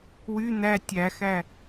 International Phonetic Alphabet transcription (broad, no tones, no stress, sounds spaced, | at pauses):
w y n̪ æ tʲ æ x æ